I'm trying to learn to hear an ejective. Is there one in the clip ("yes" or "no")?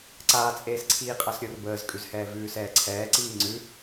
yes